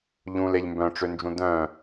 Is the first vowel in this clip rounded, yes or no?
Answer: yes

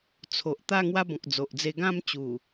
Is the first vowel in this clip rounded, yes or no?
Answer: yes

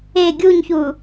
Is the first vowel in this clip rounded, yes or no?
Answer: no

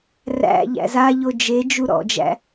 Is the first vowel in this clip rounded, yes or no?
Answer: no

